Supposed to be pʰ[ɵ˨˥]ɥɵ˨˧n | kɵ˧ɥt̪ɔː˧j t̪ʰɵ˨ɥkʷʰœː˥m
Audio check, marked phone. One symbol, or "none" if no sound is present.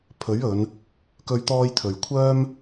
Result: ɵ˨˥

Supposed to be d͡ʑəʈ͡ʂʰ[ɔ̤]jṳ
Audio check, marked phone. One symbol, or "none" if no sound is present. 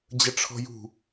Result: ɔ̤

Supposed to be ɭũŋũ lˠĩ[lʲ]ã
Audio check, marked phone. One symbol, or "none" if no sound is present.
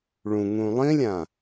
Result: lʲ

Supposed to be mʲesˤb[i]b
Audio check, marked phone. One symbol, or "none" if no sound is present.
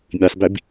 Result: i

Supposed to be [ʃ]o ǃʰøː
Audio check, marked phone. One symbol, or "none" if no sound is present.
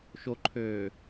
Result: ʃ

